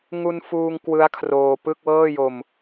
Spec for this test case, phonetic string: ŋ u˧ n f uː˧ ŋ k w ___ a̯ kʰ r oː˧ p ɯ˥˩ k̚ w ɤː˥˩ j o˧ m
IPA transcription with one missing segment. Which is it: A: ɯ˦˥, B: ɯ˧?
A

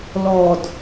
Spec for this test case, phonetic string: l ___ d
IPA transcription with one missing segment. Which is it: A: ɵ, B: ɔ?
B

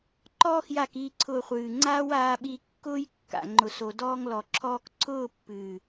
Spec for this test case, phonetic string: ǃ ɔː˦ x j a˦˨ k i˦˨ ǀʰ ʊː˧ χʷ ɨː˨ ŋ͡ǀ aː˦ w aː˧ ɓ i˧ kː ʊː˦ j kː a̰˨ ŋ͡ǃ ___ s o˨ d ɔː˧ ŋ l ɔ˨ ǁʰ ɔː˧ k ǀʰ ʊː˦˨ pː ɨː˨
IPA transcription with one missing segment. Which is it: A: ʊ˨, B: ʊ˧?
A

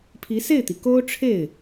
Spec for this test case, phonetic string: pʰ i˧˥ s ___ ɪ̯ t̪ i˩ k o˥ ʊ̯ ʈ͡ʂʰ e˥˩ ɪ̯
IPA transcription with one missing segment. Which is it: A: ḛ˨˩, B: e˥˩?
B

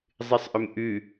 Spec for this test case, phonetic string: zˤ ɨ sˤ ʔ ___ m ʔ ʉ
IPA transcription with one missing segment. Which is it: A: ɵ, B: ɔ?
A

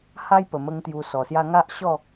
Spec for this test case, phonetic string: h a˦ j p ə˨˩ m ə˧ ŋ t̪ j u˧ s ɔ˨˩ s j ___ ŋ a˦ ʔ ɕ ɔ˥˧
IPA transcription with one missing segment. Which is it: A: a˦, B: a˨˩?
A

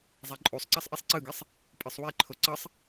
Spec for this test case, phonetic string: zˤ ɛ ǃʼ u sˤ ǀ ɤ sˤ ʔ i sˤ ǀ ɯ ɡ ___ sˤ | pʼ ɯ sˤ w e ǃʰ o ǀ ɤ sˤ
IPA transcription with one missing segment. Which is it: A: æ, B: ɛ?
B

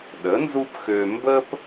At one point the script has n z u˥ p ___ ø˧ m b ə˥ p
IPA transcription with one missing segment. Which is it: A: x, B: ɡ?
A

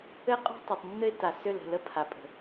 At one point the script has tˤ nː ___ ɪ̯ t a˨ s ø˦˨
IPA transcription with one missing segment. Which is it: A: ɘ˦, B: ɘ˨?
A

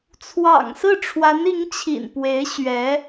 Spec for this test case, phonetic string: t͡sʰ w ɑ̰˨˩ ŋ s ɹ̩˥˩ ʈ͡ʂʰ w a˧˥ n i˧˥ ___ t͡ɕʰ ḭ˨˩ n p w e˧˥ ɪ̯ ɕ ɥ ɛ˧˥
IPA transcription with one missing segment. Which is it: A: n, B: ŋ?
B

